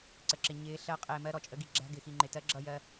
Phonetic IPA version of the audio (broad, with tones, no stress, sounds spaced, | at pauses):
ǀ ə˨ ǁ ɪ˨ ɲ ɪː˨˦ ɬ ɜ˨˦ qʼ ɪː˨ m ɜ˦ ɾ ɔ˨ t͡ʃʼ ə˦ ɡ i˦ ɡ͡ǁ æ̤˦ ɡ ɪ˨ x i˨ ŋ͡ǃ ɪ˨ t ɜ˦ ɡ͡ǁ ʌ˦˨ j ɜ˦